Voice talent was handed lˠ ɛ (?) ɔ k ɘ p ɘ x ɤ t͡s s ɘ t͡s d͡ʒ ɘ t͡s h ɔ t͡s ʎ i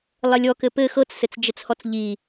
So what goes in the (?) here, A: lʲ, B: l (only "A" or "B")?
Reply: A